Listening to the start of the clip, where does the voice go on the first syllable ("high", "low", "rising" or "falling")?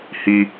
high